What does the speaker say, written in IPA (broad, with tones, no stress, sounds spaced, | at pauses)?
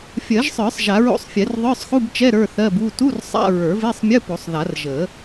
fʲ ɜ˨˩˦ ʒ sˤ ə˞˨˩˦ sˤ ʒ a˨˩˦ ɹ o̰˧˥˧ sˤ fʲ ɛ˨˩˦ r ðˤ ə˞˧˥˧ sˤ x u˧˥˧ b t͡ʃ ɛ˧˥˧ ɾ ə˞˧˥˧ θ ɜ˧˥˧ b u˧˥˧ t u˧˥˧ r sˤ a̰˧˥˧ ɹ ə˞˨˩˦ v e˧˥˧ sˤ mʲ ə˧˥˧ p o˨˩˦ sˤ ð a˨˩˦ r ʒ ə˨˩˦